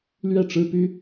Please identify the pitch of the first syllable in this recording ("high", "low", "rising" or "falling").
falling